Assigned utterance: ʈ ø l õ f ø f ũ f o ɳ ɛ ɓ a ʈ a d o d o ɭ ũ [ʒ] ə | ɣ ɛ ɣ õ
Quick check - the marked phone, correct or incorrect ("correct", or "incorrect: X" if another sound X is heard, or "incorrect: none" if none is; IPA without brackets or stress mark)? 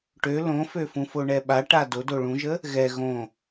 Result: correct